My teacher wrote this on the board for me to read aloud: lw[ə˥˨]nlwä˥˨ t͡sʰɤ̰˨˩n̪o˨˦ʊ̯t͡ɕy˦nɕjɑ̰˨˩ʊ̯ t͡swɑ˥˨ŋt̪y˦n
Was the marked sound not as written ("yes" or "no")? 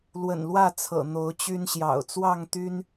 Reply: yes